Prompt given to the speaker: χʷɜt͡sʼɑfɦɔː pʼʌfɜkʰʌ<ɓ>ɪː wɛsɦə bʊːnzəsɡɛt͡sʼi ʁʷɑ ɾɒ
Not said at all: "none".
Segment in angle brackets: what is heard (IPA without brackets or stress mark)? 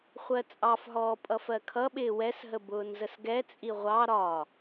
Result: ɓ